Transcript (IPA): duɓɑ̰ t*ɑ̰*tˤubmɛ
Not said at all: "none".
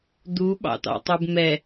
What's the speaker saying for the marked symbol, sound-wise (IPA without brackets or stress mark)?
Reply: ɑ̰